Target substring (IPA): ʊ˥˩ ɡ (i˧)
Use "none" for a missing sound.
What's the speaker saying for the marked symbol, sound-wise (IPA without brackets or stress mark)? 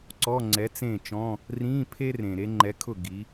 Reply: i˨˥